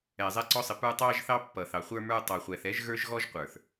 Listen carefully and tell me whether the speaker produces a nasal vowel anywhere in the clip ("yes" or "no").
no